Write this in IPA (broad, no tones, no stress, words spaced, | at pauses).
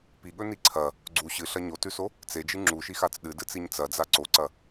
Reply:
piɠɵni ǀʰɐ | ɡ͡ǀu ɕɨɬɐ ɲotʉso | t͡sed͡ʒɨ ŋ͡ǁuʃixat͡s ɗɨdɨt͡siɲ t͡sɐd͡za ǀoǀɐ